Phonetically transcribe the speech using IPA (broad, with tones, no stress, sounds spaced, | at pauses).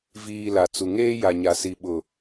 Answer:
v iː˨ l a˨ t͡s u˨ ŋ eː˦ j a˨ ɲ a˨ s i˨ ɓ ʊ˨